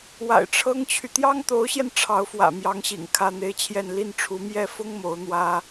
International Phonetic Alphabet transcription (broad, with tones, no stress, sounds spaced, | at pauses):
w a̰˨˩ ɪ̯ ʈ͡ʂʰ ɤ˥ ŋ t͡ɕʰ y˨ t̪ j ɑ˥ ŋ t̪ o˧˥ ʊ̯ ɕ j ɛ˧ n ʈ͡ʂʰ ɑ˧˥ ʊ̯ f w ä̰˨˩ m j ɑ˧˥ ŋ ɕ ḭ˨˩ ŋ kʰ ä˥˧ n̪ e˥˧ ɪ̯ t͡ɕʰ j ɛ˥˧ n l i˥˩ n ʈ͡ʂʰ u˧˥ m j ɛ˥ f ʊ˥ ŋ m o˧˥ ʊ̯ n̪ w ä˥